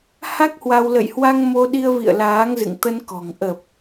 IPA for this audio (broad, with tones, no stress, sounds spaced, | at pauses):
h a˦˥ k̚ h w a˧ w l ə̰˧˨ j h w a˧ ŋ m o˧ ɗ i˧ ə̯ v ḭ˧˨ ə̯ l aː˨˦ ŋ z ɨ̰˧˨ ŋ t̪ ə˧ n k ɔ̤˨˩ ŋ ʔ ə˨˩ p̚